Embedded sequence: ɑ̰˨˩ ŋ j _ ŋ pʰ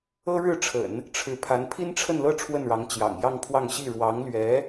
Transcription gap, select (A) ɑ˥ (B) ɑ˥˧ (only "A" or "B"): B